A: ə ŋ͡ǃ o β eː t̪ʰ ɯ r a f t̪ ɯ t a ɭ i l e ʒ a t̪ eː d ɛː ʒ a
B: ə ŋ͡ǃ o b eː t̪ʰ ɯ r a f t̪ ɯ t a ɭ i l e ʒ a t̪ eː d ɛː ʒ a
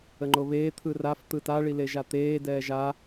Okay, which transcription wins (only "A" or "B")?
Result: A